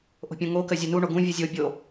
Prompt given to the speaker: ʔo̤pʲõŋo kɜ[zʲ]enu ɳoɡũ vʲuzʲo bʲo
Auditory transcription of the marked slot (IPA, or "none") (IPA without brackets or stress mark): zʲ